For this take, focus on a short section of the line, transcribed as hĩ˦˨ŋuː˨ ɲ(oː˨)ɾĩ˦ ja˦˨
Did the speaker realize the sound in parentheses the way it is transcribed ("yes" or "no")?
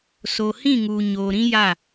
yes